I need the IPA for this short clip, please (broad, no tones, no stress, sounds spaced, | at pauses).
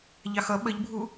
ʎ ɑ x ʌ ɓ ə ʎ bʱ u